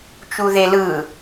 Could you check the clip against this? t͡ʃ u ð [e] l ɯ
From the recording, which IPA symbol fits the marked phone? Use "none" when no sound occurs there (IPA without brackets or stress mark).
e